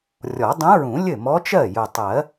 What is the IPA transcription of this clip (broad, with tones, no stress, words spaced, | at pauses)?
rʲɔ˨˩˦dˤũ˧˥ɹũ˨˩˦ lʲɘ˥˩mɔ˧˥t͡ʃɜ˥˩ jʊ˨˩tˤɜ˨˩˦